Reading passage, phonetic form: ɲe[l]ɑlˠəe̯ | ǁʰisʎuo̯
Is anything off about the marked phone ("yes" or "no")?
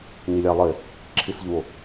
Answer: yes